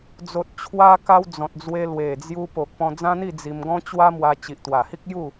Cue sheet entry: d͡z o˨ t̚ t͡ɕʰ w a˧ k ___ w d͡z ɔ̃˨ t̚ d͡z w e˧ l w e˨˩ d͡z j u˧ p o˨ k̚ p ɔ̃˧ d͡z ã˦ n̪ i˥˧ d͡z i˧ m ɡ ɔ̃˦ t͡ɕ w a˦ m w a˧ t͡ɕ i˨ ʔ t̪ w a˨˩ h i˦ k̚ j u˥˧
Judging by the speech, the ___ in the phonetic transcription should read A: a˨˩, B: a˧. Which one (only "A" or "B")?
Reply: B